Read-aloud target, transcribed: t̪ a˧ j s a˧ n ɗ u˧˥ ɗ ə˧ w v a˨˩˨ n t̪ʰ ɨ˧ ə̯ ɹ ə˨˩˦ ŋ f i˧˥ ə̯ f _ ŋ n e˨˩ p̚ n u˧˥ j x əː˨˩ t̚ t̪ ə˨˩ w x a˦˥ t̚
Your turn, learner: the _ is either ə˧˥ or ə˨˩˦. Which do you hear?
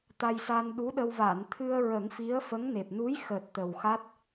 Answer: ə˧˥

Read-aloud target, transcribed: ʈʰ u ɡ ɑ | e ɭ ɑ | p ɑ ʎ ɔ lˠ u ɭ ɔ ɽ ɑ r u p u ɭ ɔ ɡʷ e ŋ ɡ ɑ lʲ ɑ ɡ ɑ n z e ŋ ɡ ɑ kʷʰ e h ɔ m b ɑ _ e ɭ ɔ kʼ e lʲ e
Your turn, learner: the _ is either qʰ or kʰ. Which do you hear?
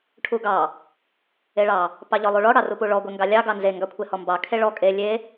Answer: kʰ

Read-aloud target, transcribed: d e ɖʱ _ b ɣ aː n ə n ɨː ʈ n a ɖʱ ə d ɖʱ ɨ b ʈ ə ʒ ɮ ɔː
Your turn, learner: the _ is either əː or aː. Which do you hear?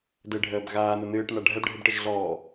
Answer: əː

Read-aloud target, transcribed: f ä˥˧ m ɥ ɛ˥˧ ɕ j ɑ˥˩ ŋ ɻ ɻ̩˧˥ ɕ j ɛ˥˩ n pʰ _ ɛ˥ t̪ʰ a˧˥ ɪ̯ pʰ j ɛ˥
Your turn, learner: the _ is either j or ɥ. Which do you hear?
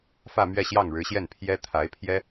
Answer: j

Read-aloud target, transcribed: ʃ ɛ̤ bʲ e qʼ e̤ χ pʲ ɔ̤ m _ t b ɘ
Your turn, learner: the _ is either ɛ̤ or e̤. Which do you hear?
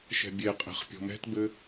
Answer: ɛ̤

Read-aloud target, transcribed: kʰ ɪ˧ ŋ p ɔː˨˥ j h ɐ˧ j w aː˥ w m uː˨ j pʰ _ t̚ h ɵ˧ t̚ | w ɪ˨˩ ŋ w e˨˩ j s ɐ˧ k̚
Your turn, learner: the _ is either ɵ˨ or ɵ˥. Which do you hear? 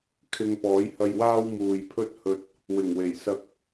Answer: ɵ˥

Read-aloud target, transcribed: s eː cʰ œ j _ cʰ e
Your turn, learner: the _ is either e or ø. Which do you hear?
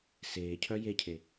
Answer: e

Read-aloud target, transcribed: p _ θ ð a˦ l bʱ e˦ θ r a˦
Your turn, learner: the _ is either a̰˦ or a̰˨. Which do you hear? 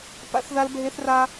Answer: a̰˦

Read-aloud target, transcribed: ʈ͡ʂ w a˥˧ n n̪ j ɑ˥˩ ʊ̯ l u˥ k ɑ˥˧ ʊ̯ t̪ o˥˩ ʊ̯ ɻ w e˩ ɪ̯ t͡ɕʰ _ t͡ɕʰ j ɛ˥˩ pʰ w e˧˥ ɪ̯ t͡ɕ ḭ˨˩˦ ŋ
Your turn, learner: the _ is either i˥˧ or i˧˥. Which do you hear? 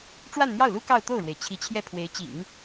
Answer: i˧˥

